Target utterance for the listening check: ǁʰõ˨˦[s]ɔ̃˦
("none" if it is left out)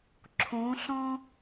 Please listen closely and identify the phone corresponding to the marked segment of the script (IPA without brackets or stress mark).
ɬ